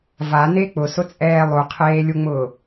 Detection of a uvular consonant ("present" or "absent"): present